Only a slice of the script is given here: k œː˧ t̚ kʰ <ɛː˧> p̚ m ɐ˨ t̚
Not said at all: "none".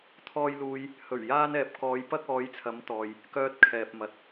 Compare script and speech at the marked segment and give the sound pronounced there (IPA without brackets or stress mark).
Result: ɛː˨